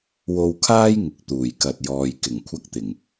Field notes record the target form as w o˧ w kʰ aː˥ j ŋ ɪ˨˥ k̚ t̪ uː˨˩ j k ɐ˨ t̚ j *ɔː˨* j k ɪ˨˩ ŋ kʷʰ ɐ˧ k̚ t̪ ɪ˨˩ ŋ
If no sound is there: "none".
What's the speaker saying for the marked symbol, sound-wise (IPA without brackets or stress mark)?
ɔː˨